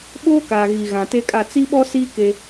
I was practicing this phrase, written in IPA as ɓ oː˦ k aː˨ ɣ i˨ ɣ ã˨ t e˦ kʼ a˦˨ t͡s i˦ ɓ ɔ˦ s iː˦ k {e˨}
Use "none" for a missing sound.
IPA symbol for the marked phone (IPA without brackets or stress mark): e˦